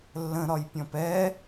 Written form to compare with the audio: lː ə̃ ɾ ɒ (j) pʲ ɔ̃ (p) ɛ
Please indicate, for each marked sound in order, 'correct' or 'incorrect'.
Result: correct, correct

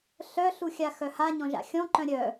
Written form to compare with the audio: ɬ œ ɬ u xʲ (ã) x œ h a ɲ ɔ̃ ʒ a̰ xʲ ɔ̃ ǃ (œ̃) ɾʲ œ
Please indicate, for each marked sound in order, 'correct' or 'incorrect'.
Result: incorrect: a, correct

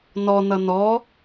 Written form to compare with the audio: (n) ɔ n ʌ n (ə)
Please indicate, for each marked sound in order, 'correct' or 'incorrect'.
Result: correct, incorrect: ɔ

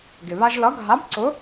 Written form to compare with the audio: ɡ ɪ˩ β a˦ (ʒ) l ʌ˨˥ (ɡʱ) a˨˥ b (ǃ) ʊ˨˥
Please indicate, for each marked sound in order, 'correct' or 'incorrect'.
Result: correct, correct, incorrect: ǀ

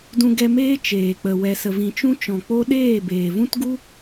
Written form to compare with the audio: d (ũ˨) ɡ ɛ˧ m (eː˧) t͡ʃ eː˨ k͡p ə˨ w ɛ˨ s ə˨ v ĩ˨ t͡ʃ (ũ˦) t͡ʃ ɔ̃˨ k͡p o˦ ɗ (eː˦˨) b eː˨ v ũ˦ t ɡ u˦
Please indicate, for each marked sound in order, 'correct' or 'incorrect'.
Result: incorrect: ũ˧, incorrect: eː˦, correct, correct

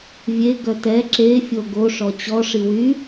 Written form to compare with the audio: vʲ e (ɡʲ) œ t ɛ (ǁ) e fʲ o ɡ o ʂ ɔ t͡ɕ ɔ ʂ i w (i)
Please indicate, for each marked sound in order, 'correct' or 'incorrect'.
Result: incorrect: ɡ, correct, incorrect: y

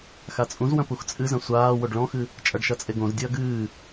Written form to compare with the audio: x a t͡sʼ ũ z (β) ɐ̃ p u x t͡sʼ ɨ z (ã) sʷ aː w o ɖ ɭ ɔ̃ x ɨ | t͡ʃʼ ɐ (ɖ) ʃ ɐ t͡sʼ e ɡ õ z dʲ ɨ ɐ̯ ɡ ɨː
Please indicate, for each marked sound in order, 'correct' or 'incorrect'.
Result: incorrect: w, incorrect: ɐ̃, correct

